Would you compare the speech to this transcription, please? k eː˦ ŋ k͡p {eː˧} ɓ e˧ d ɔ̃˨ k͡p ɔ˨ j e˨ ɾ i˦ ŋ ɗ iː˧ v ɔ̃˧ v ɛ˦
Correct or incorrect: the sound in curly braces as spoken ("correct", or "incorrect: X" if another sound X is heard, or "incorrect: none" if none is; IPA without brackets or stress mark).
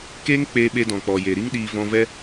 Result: correct